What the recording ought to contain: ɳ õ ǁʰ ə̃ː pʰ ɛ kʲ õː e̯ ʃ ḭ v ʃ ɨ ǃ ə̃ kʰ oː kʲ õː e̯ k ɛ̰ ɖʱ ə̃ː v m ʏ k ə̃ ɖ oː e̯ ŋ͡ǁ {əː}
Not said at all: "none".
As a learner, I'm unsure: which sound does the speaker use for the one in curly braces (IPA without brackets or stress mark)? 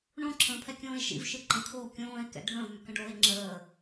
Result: əː